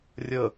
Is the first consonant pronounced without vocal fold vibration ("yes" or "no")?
no